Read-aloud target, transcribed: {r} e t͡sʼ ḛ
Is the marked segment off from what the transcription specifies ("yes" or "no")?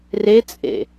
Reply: no